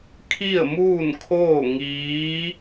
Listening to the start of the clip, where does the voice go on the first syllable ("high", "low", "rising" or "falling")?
falling